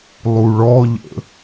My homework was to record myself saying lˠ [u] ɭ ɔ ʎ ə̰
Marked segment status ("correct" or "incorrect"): correct